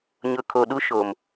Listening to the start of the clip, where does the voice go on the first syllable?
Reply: low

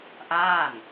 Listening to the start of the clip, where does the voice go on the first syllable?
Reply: falling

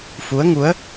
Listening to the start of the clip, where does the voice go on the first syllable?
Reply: rising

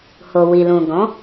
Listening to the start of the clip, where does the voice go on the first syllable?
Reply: low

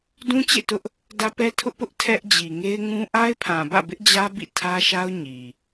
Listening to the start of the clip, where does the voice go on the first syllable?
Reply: high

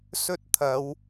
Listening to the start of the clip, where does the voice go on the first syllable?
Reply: high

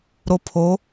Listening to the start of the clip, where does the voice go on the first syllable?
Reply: low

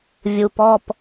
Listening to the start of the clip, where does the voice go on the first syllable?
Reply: low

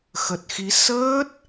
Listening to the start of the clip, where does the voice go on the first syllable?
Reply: low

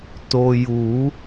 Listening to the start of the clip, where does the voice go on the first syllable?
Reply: low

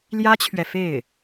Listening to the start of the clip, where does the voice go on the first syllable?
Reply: high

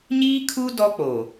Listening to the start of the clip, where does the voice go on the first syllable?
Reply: high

